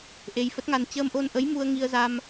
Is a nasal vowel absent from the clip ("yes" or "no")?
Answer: yes